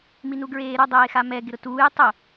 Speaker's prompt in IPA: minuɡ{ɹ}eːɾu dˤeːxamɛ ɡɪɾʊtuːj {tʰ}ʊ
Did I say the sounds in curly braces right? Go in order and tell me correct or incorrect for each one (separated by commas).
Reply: correct, incorrect